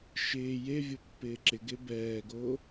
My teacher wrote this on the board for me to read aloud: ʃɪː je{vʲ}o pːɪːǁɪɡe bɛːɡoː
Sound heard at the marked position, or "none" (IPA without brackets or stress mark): vʲ